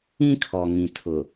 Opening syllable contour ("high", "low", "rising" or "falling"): high